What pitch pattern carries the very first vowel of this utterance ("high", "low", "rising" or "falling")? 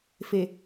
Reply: low